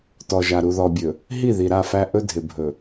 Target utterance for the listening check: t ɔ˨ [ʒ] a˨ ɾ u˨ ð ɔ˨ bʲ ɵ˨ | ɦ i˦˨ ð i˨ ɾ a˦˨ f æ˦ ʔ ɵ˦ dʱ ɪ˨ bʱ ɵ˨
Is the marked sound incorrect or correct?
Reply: correct